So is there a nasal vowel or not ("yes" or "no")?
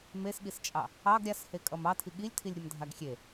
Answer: no